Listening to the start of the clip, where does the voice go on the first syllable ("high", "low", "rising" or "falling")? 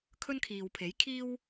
high